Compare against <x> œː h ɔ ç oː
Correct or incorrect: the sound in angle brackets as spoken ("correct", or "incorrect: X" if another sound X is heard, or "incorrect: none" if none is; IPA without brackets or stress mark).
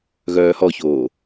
incorrect: ɣ